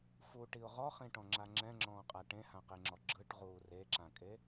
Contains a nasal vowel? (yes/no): yes